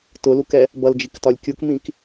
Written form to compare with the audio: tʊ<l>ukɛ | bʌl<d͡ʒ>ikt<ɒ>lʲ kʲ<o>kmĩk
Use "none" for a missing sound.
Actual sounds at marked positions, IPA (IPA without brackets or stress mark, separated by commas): l, d͡ʒ, ɒ, u